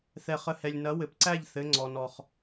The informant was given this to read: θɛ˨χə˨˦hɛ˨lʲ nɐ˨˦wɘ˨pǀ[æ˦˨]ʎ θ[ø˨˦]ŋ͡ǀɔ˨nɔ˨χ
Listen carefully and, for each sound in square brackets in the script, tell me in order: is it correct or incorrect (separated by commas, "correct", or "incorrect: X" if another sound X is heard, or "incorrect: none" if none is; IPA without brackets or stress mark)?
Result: correct, incorrect: ɘ˨˦